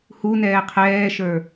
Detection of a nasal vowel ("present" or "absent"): absent